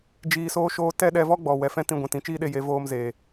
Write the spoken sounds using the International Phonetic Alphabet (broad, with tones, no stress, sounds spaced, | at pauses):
d͡ʒ iː˧ s oː˦ ʃ oː˦ t ɛ˦ ɗ ɛ˧ v ɔ˦ ɡ͡b ɔ˨ w ɛ˨ f ɛ̃˦ t ĩ˦˨ ɡʷ ɛ̃˧ t ĩ˨˦ t͡ʃ iː˦ ɗ e˧ j e˨˦ v oː˧ m z e˨